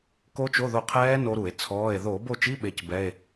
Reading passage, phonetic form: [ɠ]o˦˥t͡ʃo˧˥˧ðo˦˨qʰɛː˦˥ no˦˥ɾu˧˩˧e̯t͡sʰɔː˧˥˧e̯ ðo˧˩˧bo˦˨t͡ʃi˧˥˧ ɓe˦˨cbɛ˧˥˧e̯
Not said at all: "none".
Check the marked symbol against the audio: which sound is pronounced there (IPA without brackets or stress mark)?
k